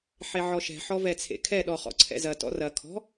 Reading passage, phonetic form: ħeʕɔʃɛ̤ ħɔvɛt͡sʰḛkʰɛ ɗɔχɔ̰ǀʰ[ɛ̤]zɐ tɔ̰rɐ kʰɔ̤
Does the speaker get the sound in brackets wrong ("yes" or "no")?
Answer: yes